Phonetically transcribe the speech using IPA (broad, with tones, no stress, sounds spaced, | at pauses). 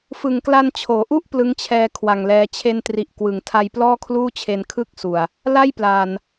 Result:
f ɯ˨˩ ŋ k l a˧ n t͡ɕʰ oː˩˦ ʔ u˥˩ ʔ p l ɯ˦˥ ŋ t͡ɕʰ ɛː˧ kʰ w a˨˩ ŋ l ɛː˧ t͡ɕʰ e˧ n t r i˨˩ ʔ k w ɯ˨˩ ŋ tʰ a˧ j p l ɔː˥˩ kʰ l uː˥˩ t͡ɕʰ e˧ n kʰ ɯ˥˩ k̚ s u˨˩ a̯ | l a˥˩ j p l aː˨˩ n